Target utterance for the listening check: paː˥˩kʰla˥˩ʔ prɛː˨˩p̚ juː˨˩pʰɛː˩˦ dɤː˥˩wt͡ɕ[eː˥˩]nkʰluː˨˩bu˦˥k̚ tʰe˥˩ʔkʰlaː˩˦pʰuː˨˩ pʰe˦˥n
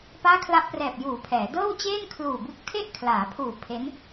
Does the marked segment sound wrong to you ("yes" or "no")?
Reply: no